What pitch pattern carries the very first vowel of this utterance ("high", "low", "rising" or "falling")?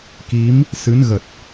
rising